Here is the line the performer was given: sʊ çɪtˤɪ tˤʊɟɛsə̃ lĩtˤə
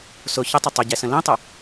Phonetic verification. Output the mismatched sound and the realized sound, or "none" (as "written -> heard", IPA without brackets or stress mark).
none